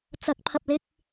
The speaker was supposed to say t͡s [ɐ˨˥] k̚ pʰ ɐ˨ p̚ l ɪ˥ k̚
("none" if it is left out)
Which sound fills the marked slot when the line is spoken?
ɐ˨˥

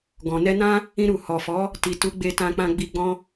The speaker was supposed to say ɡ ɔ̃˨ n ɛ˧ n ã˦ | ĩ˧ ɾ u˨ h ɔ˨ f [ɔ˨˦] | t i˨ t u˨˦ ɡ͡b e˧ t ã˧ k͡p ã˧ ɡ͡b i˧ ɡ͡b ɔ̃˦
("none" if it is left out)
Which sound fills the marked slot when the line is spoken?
ɔ˨˦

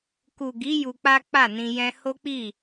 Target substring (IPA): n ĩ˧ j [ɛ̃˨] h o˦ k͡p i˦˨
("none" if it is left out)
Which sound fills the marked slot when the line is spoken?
ɛ̃˦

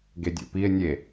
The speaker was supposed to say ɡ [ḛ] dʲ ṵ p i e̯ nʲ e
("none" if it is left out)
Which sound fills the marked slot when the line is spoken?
e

